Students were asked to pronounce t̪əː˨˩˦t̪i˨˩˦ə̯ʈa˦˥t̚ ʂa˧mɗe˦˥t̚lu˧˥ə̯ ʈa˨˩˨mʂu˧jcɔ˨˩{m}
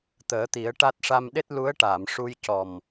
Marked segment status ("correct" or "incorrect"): correct